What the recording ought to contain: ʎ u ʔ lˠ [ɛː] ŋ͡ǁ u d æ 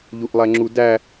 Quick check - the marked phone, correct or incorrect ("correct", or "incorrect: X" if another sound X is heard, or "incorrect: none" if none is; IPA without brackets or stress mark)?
incorrect: ɛ